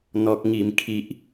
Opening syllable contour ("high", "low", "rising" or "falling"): high